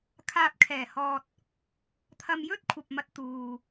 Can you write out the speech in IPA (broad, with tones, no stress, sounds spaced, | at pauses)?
kʰ aː˨ p̚ kʰ ɛː˨˩ h ɔː˨ t̚ | t̪ʰ ɐ˧ m j ɵ˥ t̚ kʷʰ ɐ˨ p̚ m ɐ˧ t̚ t̪ uː˨